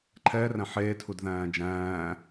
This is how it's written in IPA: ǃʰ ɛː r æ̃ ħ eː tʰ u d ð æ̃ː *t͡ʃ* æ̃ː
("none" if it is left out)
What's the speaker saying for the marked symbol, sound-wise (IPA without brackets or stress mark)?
d͡ʒ